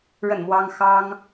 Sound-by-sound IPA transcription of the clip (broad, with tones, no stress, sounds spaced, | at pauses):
ɻ ə˥˩ n m w ɑ˥ ŋ x ɑ˥ ŋ